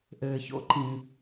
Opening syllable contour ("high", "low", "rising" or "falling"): low